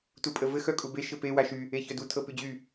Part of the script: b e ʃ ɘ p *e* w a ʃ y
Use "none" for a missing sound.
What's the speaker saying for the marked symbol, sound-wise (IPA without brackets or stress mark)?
e